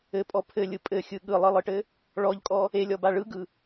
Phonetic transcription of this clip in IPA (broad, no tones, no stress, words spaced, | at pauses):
ɘpʼɔ pʰɘlʲɯ pʼɘxʲɯ ɠɯlˠɯlˠɯʈɘ | ɭɔʎkʼɔ | elʲɔba ɭɯɡɯ